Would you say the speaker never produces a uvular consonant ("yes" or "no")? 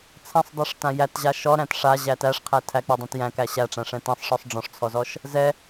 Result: no